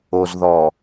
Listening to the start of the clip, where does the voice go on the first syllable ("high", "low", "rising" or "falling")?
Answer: low